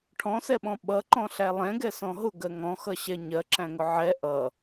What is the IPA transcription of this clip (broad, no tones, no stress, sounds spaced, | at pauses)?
ʈʰ ɔ̃ s ɛ ɓ ɔ̃ ɓ ʌ ǃ ɔ̃ ɬ æ lˠ ɛ̃ ɡ ɛ s ɔ̃ ɦ ʊ ɡ ɜ ŋ ɔ̃ x ʌ ɕ ɛ ɲ ɜ ǁ æ̃ ŋ ʊ ʕ ɛ ʔ ʌ